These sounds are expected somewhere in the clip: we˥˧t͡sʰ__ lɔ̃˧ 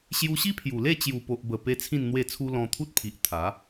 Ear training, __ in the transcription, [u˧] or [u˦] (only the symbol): u˦